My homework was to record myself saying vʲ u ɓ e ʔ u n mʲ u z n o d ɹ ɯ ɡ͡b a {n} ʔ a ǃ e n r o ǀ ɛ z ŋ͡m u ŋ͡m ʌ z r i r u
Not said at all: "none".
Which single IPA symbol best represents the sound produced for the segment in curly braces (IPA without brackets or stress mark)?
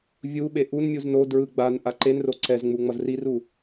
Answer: n